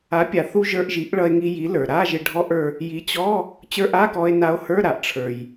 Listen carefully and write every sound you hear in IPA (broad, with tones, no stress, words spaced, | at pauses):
a˩˥pʲa˩θu˧ ʒə˞˧ʔʒi˩˥ʔ ɭʌ˧e̯ŋi˧ji˩˥ lə˞˩ɾa˧˥˧ ʒɪ˧ɖʱɔ˧˥˧ʔə˞˧ | ji˩˥t͡ɕɔ˧˥˧ | t͡ɕə˞˧˥˧ʔa˧˥˧kɔ˧e̯ na˧o̯hə˞˧˥˧ɾa˩ʔ ʈ͡ʂʰə˞˩j